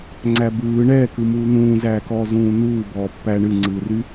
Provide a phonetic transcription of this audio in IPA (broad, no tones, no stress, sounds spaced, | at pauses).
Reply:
ŋ͡ǀ æ b ɯː ɳ ɛː k ɯ m uː n̪ ũː z æː k ɔː z ũː n̪ uː b ɔː pː æ ɳ ɨ ŋ͡ǀ ɯː r y